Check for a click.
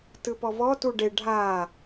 absent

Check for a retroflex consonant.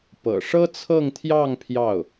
present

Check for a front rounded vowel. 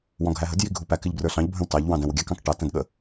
absent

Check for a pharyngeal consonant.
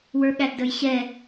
absent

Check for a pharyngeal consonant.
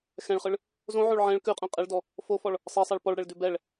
present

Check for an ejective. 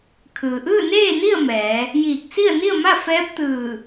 absent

